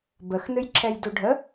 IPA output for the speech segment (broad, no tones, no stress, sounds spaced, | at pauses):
b ə x n ɨ j ǁʰ ɛ j d u ɖʱ ə